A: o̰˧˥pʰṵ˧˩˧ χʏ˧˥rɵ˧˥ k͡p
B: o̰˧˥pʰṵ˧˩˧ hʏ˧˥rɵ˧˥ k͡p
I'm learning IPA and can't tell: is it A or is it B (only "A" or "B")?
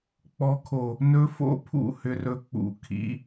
B